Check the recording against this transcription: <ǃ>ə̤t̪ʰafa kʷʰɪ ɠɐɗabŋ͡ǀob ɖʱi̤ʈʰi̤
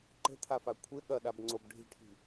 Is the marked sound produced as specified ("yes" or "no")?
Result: yes